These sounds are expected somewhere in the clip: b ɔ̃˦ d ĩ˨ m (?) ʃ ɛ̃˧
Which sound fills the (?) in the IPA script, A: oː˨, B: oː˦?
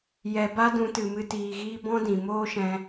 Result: B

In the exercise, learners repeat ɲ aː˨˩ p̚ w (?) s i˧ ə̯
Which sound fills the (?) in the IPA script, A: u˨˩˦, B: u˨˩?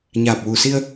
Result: B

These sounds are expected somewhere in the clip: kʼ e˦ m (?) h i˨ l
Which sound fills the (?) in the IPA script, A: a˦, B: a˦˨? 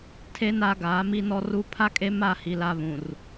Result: B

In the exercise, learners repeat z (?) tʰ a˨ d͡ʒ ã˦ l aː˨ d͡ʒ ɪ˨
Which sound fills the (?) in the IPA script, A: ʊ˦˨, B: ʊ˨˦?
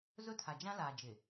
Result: A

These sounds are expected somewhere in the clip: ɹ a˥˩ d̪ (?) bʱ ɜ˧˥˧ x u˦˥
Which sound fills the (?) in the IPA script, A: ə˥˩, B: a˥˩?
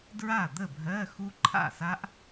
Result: A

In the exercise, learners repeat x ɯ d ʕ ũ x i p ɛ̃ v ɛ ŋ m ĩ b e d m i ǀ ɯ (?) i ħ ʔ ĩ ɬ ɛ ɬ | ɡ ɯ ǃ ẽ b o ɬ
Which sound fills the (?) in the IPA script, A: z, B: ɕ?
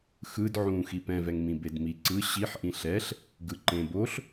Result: B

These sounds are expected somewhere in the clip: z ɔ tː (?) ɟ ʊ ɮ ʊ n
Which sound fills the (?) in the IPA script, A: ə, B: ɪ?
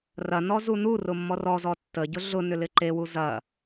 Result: A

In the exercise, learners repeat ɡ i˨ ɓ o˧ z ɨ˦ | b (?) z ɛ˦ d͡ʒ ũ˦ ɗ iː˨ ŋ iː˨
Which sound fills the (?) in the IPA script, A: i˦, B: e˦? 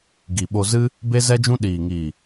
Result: B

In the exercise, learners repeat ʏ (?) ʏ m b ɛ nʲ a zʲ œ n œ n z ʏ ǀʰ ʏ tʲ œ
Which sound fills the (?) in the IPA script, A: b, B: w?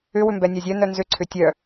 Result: B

